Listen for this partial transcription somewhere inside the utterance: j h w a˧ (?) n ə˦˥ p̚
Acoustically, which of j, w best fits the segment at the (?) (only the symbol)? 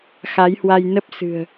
j